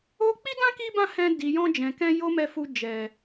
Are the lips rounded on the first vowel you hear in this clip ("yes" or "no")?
yes